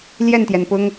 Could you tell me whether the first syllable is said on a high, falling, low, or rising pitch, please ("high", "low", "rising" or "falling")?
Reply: falling